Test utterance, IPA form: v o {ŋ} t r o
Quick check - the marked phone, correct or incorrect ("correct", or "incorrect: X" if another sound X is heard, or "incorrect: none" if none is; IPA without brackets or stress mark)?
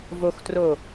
incorrect: x